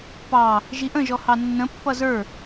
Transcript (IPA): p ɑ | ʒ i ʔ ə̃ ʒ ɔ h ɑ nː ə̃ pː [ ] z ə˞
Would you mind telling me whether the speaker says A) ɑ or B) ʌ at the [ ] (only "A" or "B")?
B